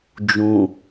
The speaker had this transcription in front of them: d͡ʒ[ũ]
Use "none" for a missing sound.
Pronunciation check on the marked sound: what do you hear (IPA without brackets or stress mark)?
ũ